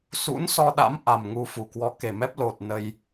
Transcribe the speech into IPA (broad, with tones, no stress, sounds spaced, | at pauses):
s ṵ˧˥ n s ɔ˧ ɗ a̰˧˥ m ʔ a˨˩ m ŋ u˧ f u˧˩ k w ɔ˨˦ k e˨˩ m ɛ˦˥ p̚ l o˨˩ t̚ n ə˧ j